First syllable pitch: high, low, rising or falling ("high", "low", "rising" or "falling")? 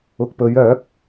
low